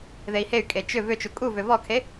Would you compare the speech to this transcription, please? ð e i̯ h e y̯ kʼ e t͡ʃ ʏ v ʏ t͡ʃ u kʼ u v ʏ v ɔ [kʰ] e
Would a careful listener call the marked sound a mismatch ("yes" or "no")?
no